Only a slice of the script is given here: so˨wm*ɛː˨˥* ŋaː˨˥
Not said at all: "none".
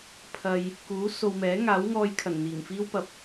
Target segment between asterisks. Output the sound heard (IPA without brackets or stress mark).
ɛː˨˥